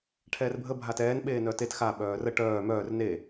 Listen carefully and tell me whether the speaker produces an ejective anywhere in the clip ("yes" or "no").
no